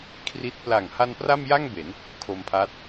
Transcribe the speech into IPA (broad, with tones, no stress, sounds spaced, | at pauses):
kʰ r i˦˥ t̚ p l a˨˩ ŋ h a˧ n p r a˥˩ m j a˥˩ ŋ b e˩˦ n | kʰ o˧ m pʰ a˦˥ t̚